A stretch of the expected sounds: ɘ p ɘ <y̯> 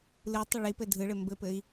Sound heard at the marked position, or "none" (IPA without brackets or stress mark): i̯